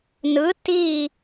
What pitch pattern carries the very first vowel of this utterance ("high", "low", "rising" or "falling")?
rising